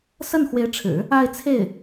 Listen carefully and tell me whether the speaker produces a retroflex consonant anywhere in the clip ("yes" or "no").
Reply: yes